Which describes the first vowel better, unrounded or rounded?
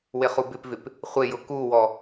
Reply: unrounded